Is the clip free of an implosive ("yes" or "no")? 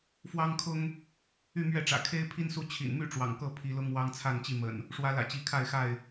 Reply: yes